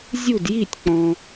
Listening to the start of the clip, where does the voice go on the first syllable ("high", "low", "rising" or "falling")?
falling